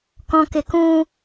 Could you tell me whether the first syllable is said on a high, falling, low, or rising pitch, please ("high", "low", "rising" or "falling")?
low